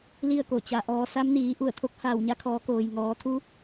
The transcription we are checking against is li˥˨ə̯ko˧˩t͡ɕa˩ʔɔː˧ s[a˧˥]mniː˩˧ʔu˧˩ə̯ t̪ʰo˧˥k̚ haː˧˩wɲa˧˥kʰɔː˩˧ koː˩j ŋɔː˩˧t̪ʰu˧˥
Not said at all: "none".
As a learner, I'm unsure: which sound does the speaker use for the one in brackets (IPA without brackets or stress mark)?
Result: a˧˥